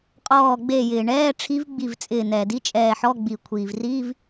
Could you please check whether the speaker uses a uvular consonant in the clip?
yes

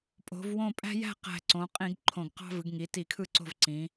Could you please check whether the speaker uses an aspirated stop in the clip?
yes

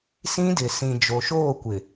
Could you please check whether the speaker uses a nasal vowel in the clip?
yes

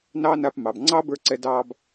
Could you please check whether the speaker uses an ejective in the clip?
no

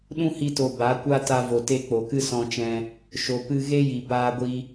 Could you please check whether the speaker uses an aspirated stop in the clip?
no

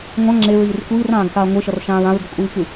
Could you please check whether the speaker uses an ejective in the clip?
yes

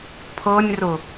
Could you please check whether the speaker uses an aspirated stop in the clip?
yes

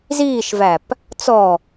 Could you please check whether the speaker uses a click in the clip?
no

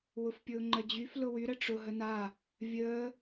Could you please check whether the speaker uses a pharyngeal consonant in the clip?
no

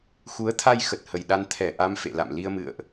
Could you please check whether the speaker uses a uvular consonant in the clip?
no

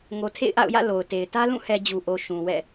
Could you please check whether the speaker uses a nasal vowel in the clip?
yes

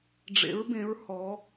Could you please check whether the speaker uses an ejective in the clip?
no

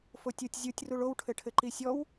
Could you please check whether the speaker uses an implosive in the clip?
no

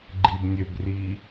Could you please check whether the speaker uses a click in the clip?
yes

